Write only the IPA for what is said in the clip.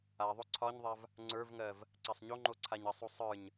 aðˤo ǀʰɒɲðˤav | ŋ͡ǀə˞vŋɜv | ǀasˤɲoŋ͡ǃo ǀʰaɲɐsˤu sˤə˞ɲ

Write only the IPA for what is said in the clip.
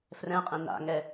frɛ̃qʼẽ na̰ŋɛ

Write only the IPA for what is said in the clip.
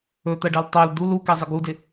ɵt̪ɜɖɜl tˤɜl dul ukɛzˤɪ ɡudɪ

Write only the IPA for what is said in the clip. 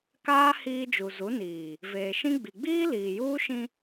kaː˦ hiː˦d͡ʒu˨ zu˨˦niː˨ | veː˨ʃĩ˦ ɡ͡bi˨ɡ͡biː˦liː˨juː˦ ʃĩ˦

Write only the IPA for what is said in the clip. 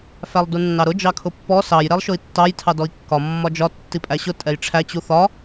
fælˠdunːɑɾʊ d͡ʒɑkʰʊpːɔ sɑj ɾɛlˠʃʊi̯tːɑj tʰɑdɔi̯kːɒ mːɒd͡ʒɒ tːipʼæɕʊ tʼɛjʈ͡ʂʰæ t͡ɕuθɒ

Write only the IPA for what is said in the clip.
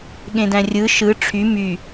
ɠẽdæ̃rʲɯ ʃɯ ʈ͡ʂʰy my

